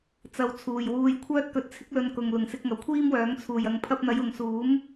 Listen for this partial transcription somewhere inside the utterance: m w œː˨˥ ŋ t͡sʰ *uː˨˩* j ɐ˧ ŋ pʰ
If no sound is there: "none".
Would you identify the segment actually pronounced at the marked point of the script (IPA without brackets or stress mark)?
uː˨˩